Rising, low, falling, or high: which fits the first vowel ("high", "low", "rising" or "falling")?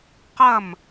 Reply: falling